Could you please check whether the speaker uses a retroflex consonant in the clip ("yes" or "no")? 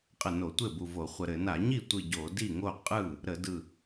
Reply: no